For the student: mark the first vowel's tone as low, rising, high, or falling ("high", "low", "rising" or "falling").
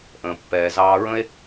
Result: low